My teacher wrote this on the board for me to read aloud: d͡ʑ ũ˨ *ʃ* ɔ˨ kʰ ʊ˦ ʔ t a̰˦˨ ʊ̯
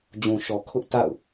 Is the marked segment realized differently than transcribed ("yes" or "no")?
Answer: no